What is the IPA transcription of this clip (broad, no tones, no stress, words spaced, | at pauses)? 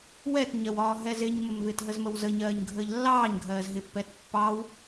wɛtɲɜwɒː ɦɛzɪɲməm vɪːtɦəzməwzə ɲɜːɲɡʱəːʎlːɑːɲ ɡʱɜːzɦɪpːɛːt pːɑːw